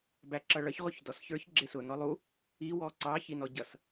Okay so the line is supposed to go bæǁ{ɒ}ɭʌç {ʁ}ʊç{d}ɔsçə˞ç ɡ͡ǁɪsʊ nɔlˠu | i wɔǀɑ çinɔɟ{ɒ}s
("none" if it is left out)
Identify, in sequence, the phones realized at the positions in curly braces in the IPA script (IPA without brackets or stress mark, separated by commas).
ʌ, ʁ, d, ʌ